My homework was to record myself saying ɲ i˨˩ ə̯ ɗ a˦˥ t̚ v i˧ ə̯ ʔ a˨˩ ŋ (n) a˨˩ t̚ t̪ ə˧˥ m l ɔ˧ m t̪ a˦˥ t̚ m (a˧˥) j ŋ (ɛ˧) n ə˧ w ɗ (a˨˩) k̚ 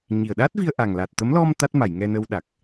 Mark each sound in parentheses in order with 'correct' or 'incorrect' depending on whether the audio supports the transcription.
incorrect: l, incorrect: a˨˩˨, correct, correct

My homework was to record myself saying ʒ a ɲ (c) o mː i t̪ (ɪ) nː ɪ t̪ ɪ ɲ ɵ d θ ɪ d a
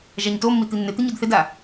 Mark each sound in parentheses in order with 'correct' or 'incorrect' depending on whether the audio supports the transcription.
incorrect: t, incorrect: i

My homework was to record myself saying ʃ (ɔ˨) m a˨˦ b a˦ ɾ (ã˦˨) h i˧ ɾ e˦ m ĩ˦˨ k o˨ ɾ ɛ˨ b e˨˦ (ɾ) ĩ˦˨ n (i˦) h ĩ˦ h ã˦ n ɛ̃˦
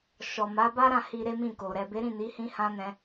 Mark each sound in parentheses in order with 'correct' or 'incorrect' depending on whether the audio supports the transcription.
correct, correct, correct, incorrect: i˨˦

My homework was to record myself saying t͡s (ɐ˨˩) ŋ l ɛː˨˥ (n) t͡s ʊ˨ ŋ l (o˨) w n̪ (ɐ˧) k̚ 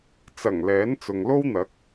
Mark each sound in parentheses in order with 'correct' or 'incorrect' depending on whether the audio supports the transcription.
correct, correct, incorrect: o˥, incorrect: ɐ˨˥

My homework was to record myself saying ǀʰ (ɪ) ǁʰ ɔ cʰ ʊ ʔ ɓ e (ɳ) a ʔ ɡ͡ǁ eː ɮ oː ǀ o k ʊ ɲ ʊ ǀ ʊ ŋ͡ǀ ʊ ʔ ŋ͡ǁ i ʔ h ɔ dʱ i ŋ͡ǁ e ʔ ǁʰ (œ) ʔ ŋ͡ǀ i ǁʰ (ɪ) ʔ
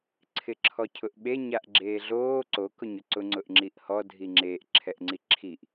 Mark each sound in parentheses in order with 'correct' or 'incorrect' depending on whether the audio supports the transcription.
correct, incorrect: ɲ, incorrect: ɛ, incorrect: i

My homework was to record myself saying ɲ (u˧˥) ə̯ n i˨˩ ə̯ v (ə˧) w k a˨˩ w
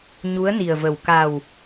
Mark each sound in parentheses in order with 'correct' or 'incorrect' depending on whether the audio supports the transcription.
correct, incorrect: ə˨˩

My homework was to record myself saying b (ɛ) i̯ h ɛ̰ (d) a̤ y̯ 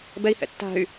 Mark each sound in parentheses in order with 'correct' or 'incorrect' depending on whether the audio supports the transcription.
correct, incorrect: tː

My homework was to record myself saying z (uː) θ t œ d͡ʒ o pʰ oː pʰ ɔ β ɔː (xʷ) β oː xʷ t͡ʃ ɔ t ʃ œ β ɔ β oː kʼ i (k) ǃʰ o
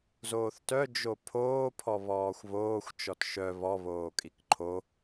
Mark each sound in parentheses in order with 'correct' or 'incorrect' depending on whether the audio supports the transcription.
incorrect: oː, correct, correct

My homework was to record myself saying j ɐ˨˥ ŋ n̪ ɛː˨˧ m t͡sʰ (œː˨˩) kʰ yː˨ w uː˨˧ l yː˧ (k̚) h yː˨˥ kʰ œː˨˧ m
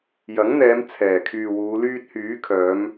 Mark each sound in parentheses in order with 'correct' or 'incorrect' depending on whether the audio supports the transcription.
incorrect: ɛː˨˩, incorrect: t̚

